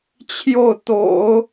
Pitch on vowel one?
falling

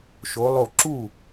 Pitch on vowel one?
rising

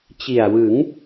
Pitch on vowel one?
low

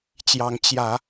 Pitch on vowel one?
rising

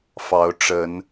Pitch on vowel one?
rising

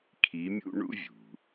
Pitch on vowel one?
rising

